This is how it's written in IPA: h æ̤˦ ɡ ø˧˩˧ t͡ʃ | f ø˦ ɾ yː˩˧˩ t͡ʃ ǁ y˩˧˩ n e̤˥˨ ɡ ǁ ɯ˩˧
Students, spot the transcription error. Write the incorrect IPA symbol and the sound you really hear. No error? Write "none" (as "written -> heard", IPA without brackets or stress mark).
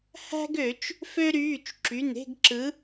none